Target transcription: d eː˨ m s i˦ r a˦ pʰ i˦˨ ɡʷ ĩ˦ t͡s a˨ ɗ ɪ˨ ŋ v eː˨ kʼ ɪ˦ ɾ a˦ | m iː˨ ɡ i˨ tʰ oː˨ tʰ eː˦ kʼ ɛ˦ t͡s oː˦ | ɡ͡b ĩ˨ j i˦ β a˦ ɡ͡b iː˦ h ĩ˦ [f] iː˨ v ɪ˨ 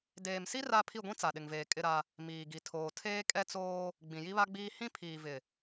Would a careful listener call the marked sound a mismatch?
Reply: yes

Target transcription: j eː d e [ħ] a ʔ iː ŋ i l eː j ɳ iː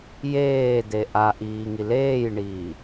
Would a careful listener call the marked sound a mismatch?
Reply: yes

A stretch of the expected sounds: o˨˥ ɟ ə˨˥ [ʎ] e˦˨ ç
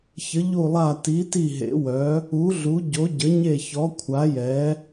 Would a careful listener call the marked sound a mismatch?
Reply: yes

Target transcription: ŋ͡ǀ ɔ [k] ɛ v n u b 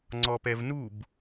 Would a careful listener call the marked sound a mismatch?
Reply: yes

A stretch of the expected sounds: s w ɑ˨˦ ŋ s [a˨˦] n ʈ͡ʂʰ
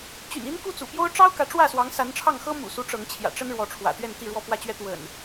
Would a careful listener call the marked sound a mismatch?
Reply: no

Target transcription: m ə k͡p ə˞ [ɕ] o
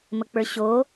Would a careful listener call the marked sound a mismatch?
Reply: no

